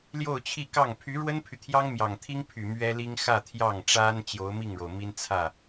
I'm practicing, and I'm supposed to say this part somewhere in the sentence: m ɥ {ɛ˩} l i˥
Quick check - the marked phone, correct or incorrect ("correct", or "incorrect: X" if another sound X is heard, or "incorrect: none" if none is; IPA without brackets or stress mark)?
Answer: incorrect: ɛ˥